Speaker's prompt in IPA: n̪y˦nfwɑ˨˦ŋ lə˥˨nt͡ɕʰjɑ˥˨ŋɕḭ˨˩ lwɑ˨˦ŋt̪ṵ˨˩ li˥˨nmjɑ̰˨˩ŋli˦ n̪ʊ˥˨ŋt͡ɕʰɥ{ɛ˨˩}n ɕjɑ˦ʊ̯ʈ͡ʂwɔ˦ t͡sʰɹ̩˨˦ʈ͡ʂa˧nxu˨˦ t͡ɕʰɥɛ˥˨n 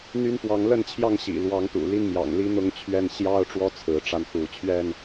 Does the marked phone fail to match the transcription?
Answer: yes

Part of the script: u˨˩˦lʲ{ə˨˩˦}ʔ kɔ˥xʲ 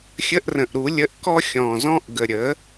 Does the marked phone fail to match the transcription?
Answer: yes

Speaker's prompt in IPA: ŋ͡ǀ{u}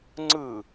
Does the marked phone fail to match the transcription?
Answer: yes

